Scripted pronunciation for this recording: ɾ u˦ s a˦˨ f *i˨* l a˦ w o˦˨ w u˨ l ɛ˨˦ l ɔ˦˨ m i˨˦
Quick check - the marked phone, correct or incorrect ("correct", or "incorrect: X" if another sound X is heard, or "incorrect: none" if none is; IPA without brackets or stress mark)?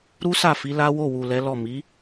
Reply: incorrect: i˨˦